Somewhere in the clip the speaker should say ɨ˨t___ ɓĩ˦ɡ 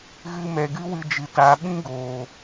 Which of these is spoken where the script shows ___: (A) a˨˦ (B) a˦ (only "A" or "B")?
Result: A